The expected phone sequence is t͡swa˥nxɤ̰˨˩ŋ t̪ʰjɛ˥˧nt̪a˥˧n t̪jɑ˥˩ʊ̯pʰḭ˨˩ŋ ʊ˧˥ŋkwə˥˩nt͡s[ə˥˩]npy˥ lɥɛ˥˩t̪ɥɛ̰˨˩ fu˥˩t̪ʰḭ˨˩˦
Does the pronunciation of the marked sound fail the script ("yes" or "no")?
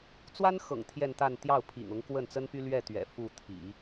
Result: yes